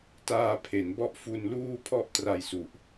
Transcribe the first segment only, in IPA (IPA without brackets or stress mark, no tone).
t